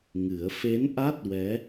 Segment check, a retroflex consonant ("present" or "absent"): absent